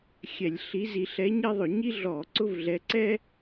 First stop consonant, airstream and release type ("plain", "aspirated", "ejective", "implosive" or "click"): click